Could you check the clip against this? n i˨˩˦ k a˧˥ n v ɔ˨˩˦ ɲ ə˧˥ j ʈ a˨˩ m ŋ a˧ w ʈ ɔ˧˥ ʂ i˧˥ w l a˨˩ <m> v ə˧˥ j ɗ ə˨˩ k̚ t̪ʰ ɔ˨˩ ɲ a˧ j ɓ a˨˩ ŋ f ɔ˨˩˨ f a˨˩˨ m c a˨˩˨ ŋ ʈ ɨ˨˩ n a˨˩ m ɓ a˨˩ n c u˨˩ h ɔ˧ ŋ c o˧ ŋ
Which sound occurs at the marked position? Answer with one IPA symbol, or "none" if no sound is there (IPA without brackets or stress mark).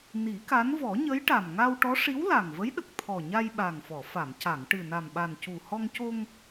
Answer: ŋ